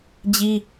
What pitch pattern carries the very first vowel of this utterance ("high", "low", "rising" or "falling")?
high